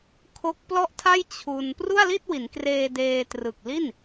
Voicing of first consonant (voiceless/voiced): voiceless